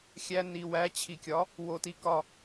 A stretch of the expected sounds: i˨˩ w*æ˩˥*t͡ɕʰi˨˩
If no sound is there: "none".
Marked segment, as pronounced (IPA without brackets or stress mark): æ˩˥